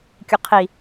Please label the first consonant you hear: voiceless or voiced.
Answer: voiceless